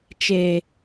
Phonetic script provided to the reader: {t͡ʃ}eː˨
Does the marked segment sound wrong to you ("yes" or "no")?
no